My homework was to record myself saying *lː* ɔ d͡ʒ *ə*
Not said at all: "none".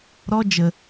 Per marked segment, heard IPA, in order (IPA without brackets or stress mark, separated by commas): ɾ, ə